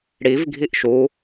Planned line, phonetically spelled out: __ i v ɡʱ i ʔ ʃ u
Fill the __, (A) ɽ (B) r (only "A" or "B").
A